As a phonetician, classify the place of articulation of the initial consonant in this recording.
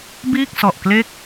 labial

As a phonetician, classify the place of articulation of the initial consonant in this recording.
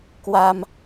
velar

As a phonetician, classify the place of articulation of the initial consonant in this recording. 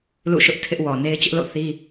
alveolar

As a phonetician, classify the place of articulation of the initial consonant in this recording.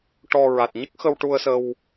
retroflex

